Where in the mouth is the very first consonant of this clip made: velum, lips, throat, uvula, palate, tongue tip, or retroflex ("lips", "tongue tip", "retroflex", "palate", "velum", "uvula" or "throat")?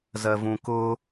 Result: tongue tip